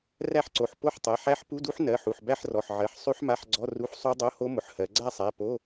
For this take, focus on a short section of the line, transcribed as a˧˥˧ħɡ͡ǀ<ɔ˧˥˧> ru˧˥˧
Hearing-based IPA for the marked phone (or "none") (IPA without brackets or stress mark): ɔ˧˥˧